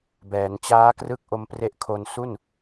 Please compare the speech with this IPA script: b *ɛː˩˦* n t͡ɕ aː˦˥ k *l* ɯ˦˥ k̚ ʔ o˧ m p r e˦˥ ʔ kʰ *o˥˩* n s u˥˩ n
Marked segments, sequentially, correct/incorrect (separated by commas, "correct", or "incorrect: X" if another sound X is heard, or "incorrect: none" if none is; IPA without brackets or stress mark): correct, incorrect: r, incorrect: o˧